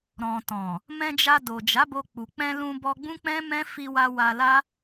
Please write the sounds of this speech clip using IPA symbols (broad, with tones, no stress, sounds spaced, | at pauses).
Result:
ɾ ɔ̃˨ t ɔ̃˨ | m ɛ̃˧ d͡ʒ a˧ d o˨ d͡ʒ a˨˦ b o˧ k͡p u˨ k͡p ɛ̃˧ l ũ˧ b ɔ˧ ɡ͡b ũ˦ k͡p ɛ̃˦ m ɛ̃˦ f i˧ w a˧ w a˧ l a˦